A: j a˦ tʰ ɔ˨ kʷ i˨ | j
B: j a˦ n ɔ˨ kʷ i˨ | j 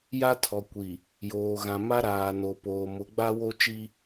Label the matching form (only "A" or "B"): A